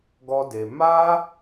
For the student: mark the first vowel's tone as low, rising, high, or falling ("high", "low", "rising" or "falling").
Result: high